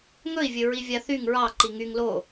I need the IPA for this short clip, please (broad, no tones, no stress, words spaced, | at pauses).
ŋɵi̯vʲɵ ɹivʲaθyŋ ɹɑǃi ŋyŋ lo